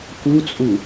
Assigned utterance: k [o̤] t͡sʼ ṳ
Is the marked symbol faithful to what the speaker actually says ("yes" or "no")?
no